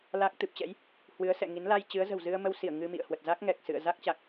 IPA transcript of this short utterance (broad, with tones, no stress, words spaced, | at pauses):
la˦˥k̚ t̪ɨ˨˩p̚t͡ɕɛ̰˧˥j | hwɨ˨˦ə̯sɛ̰˧˨ŋi˨˦n la˧j t͡ɕɨ˨˦ə̯ zə̤˨˩wzɨ˧ə̯mə˧wsi˧˩ə̯ ŋɨ˧mḭ˧˨ə̯ hwə˨˩t̚za˦˥k̚ŋɛ˨˩k̚ sɨ̰˧˨ə̯za˦˥k̚t͡ɕa˨˩k̚